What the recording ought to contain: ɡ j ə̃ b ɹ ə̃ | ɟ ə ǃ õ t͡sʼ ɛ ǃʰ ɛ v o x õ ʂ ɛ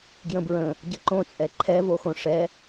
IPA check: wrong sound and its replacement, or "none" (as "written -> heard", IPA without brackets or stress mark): none